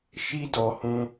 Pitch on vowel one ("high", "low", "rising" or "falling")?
high